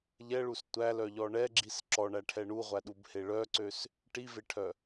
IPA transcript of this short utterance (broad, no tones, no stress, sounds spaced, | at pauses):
ʎ ɛ ɭ u s tʷ æ l œ ʎ ɔ ɳ ɛ ɡ͡ǁ i s ǁ ɔ ɳ æ ʈʰ ɛ ɳ u ʁʷ æ ɗ u b h e ɭ œ ǀ ø s | ʈ i v e ʈʰ œ